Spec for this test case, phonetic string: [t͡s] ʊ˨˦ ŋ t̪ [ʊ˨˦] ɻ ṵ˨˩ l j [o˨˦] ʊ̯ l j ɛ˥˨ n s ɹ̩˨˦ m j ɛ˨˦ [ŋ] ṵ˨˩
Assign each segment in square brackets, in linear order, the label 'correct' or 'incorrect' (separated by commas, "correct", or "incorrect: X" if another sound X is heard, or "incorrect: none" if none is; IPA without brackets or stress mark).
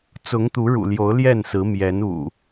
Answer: correct, incorrect: u˨˦, correct, incorrect: n